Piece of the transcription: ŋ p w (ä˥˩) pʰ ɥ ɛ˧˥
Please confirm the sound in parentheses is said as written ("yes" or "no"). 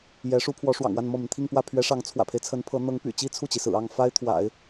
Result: yes